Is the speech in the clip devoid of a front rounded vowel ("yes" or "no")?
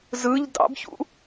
yes